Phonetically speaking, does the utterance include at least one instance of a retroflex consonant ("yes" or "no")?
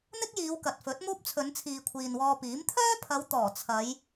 no